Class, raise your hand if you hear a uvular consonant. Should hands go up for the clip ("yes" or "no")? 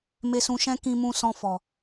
no